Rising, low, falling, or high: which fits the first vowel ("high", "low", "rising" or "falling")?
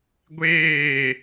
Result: falling